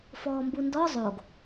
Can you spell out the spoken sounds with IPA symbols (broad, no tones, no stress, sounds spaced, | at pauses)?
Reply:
f ɔː m b u n d ɔ zˤ o ɡ